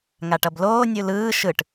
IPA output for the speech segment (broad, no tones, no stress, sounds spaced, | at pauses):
ŋ a ʈ ʌ b l oː nʲ u l ɯː ʃ ɯ ʈ